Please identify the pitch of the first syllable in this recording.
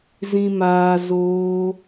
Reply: low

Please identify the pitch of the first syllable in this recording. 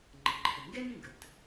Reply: low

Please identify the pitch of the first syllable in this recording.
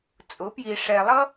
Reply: rising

